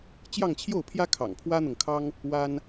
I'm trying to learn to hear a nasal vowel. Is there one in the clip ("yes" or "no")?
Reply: no